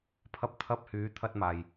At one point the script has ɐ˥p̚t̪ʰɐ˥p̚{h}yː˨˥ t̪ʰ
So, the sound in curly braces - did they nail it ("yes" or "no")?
yes